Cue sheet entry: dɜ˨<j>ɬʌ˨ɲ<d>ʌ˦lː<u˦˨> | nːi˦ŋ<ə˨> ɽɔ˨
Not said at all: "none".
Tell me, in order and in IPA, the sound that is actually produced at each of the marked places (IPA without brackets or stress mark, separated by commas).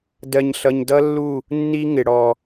ɲ, d, u˦˨, ɪ˨